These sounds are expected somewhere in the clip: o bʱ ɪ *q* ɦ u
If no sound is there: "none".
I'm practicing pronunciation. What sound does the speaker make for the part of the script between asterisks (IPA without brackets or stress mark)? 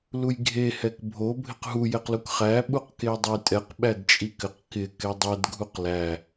q